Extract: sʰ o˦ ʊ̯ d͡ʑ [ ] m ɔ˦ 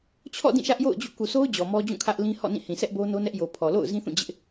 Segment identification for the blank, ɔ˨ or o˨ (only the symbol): ɔ˨